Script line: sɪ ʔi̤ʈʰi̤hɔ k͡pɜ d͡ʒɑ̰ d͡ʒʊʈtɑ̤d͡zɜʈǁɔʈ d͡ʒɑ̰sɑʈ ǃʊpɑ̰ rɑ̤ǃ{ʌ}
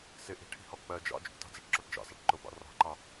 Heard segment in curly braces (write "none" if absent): ɑ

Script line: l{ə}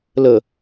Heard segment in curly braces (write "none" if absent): ə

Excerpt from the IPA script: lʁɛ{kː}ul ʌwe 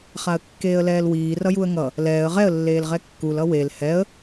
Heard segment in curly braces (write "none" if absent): kː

